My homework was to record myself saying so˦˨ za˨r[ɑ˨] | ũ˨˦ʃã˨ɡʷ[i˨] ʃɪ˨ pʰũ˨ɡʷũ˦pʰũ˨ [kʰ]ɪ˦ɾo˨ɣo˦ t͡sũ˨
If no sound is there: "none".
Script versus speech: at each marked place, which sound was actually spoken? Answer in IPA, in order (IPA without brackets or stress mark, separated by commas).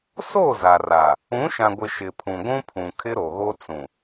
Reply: a˨, ɪ˨, kʰ